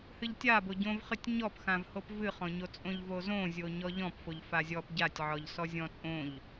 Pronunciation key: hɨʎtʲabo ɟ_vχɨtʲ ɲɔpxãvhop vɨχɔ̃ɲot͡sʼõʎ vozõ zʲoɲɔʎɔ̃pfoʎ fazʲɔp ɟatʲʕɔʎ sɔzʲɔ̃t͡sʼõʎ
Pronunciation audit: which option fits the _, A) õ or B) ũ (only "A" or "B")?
A